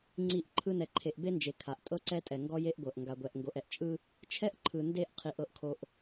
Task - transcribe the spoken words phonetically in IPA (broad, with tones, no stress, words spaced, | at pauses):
ŋ͡ǀi˦˨ʔǃʰɯ˦ nɛ˨ǃʰe˨ʔbe˦nd͡ʒe˨ kʰa˨ʔtʼɤ˦ǀɛ˦tʼɛ˨ ŋɡɔ˦je˦ʔɡʷɤ˨ʔ ŋɡa˨ɡʷɛ˨ʔ ŋɡo˨ʔɛ˨ʔt͡ʃʼɯ˦ | t͡ʃʰɛ˦ʔǃʰɯ˨ nde˦˨ʔqʰi˨ʔ ɤ˨ʔkʰo˨ʔ